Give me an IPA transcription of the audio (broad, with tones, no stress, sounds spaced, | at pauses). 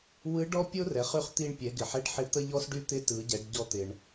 w ɯ˧˥ ɖ ɔ˥ pʲ o˥ r ɛ˩˧ χ y˧ χ t̪ i˧ ɳ pʲ ɛ˩˧ ɡ ɪ˩ ħ ɛ˧˥ ɖ ħ ɪ˧ t̪ ə˥ ʎ ɔ˥ s ɖ y˥ t̪ ɪ˧˥ t ɯ˩˧ ɟ ɛ˩˧ ɖ ɟ ɔ˧ t̪ ɪ˩ ɳ